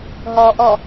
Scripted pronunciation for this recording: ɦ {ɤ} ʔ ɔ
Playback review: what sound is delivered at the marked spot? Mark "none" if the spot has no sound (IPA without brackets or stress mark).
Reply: ɔ